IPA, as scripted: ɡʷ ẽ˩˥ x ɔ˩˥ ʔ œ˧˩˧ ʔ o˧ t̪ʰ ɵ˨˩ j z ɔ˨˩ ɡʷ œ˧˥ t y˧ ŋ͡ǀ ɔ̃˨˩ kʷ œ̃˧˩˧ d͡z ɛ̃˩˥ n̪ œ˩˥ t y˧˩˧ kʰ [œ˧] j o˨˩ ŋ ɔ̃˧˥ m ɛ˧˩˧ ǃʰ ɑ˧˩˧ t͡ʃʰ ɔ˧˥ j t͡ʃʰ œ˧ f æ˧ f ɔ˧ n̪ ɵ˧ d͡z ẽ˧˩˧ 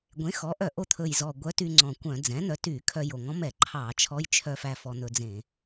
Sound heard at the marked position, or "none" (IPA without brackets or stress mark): œ˧